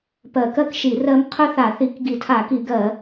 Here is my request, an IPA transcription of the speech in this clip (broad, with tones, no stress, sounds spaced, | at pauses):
p ɜ˧˩˧ k ɜ˥ k ʃ i˧˩˧ r ɜ˥ m qʰ ɵ˥ θ a˧˩˧ θ i˧˩˧ k ɡ i˧˩˧ tʰ a˧˩˧ k i˧˩˧ ɡ ɜ˧˩˧